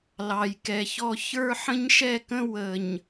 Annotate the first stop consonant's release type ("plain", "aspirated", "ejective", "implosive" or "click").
plain